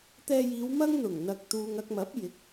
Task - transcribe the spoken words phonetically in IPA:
t̪ ɛː˧ j iː˨˧ w m ɐ˥ ŋ n̪ ʊ˨˩ ŋ n̪ ɐ˨ k̚ t̪ uː˨ ŋ ɐ˧ k̚ m ɐ˨˥ p̚ j ɪ˨˥ k̚

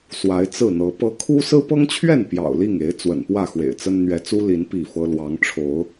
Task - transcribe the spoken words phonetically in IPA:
s w a˨˦ ɪ̯ t͡s ɹ̩˥˨ n̪ ɤ˨˦ p ɤ˨˦ kʰ u˦ s ɹ̩˦ p ɤ˦ ŋ t͡ɕʰ ɥ ɛ˥˨ n p j ɑ̰˨˩ ʊ̯ l i˥˨ ŋ e˨˦ ɪ̯ t͡s w ə̰˨˩ n p w ä˥˨ x w ḛ˨˩ ɪ̯ t͡s ə˦ n n̪ ɥ ɛ˨˦ t͡s u˦ l i˨˦ n p i˥˨ f ɤ˦ l w ɑ˨˦ ŋ ʈ͡ʂʰ o˨˦ ʊ̯

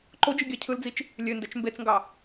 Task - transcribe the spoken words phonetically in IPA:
ǃ o d͡ʒ ɯ ɡʲ ɑ cʰ ɯ l d͡z i t͡ʃ | lʲ ø n d æ t͡ʃ m b e t͡s ŋ ɡ ɑ

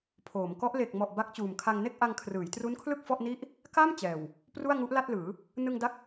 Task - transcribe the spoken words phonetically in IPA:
pʰ oː˩˦ m k ɔ˦˥ ʔ l e˨˩ k̚ m ɔ˨˩ ʔ b a˦˥ k̚ t͡ɕ uː˨˩ m kʰ a˧ ŋ n e˥˩ k̚ ʔ a˧ ŋ kʰ r ɯː˩˦ j t r u˦˥ n kʰ l ɯ˥˩ k̚ f ɔ˥˩ ʔ n i˥˩ ʔ | k a˥˩ m t͡ɕ ɛː˨˩ w | p r u˥˩ a̯ ŋ u˦˥ ʔ l a˥˩ t̚ l ɯː˩˦ | n ɯ˧ ŋ d a˦˥ k̚

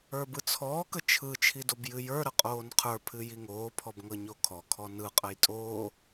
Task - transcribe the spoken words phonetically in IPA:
ə˞ b ɯ t͡sʰ ɔː k ə t͡ʃʰ ɯ t͡ʃʰ i d o b j ɨ j ə˞ ɾ ə qʼ oː n qʰ ə˞ pʰ ɨ j i ŋ oː pʰ ɔ b ŋ ɤ ɲ o kʰ ɔ kʰ ɔ n ɯ qʼ ə j tʼ oː

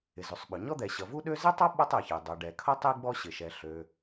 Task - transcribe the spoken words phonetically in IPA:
ɪ˩ z ʉ˩ sˤ ɓ ø˩ ɲ ɔ˥ d̪ ɛ˩ ɕ ʌ˩ v u˥ ɗ ø˥ z ɪ˥ tˤ ʌ˥ ɓ ʌ˥ tˤ ɛ˩ ç ɛ˩ dˤ ø˩ ɖ ɛ˩ kʰ ʌ˥ tˤ i˥ ɡ͡b ɔ˥ ɕ ɪ˩ ʃ ɛ˩ ɬ ø˩

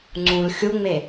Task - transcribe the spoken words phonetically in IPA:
ŋ͡ǀ ũ l xʲ u ŋ͡m e

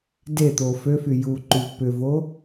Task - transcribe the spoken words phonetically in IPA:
d e t̪ o f ø f y j u ǃ y v p ʏ v o

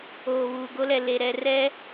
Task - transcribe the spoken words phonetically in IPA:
oː˨ β uː˨ ɡ o˦ l ɛ˨ l e˨ ɾ ɛ˨ r ɛ˦

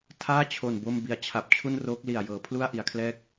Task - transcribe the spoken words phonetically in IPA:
tʰ aː˥˩ t͡ɕʰ o˨˩ n b o˧ m b i˩˦ a̯ t͡ɕʰ a˨˩ p̚ t͡ɕʰ u˥˩ n r oː˦˥ k̚ l i˨˩ a̯ j ɤː˩˦ pʰ l u˥˩ a̯ ʔ i˩˦ a̯ kʰ l ɛː˥˩ k̚

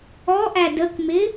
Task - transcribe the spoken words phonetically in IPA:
ɔ ʔ æ d ə k m ɪ

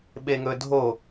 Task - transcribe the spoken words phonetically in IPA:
ɓ e ŋ ɵ dʱ o

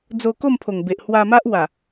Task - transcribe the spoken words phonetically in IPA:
d͡z o˧ k o˥˧ m pʰ o˨˩ ŋ b e˨ ʔ h w a˧ m a˦ ʔ w a˨˩

